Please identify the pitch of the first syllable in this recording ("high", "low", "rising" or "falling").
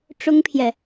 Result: high